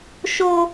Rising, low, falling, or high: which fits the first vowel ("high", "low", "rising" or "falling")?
high